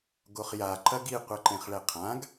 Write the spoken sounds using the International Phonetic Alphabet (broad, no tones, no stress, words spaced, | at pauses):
ɡoχja ǃɐɡi qʷɐǃẽχɭɛqʰãɡ